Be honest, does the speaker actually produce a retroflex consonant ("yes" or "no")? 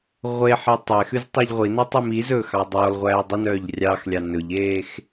no